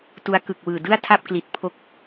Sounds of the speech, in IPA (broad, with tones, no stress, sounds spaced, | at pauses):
t u˦˥ a̯ k ɯ˨˩ k̚ w ɯː˨˩ d ɯ˥˩ a̯ tʰ a˥˩ p̚ k l i˨˩ t̚ pʰ o˦˥ k̚